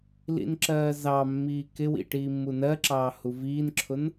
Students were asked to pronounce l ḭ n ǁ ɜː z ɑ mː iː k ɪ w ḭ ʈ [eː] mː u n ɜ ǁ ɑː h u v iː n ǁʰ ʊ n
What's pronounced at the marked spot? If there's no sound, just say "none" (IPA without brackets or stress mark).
iː